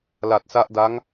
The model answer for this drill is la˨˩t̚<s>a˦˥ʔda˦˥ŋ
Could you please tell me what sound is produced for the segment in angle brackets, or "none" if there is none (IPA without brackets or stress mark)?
s